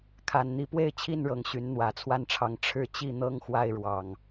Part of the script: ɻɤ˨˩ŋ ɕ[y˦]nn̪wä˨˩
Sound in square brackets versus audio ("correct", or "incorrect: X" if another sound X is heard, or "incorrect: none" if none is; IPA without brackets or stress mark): incorrect: y˨˦